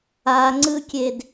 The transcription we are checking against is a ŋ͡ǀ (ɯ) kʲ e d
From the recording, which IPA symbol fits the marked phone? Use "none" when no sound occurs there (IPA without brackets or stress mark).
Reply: ɯ